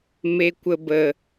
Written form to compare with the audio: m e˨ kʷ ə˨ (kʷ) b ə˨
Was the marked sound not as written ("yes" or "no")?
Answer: yes